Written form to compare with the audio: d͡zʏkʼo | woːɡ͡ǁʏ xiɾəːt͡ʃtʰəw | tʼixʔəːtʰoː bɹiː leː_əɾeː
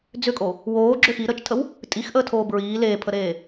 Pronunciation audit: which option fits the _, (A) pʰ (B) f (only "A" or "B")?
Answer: A